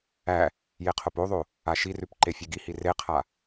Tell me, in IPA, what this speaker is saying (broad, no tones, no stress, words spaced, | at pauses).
æ | jeqʰopoðˤo | aʃirʉp ǃefʲʉɡihi reqʰa